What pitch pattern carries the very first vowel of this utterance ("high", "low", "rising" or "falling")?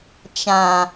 low